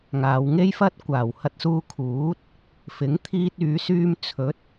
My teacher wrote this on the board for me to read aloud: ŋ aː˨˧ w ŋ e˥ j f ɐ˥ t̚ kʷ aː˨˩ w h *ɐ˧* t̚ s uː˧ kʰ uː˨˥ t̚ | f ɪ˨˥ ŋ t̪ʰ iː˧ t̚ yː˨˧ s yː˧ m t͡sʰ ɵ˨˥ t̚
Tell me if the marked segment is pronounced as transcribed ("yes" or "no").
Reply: yes